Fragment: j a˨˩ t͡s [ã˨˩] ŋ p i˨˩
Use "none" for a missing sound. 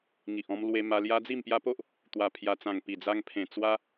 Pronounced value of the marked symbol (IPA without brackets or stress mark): ã˨˩